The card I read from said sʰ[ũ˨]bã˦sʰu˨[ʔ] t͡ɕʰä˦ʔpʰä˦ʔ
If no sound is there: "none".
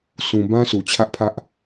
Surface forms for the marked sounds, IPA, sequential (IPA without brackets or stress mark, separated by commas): ũ˨, none